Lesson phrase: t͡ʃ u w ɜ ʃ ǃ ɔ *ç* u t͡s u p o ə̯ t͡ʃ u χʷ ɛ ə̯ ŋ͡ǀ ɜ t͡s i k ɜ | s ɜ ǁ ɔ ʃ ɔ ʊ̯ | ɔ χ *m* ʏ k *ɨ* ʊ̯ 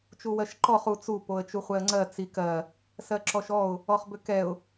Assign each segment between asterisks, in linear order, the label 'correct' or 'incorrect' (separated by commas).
incorrect, incorrect, incorrect